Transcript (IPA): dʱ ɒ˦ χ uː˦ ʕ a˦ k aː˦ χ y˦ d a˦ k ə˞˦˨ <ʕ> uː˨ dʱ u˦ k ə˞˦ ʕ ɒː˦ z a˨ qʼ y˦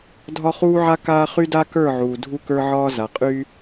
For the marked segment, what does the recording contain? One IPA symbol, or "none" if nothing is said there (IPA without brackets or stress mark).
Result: ʕ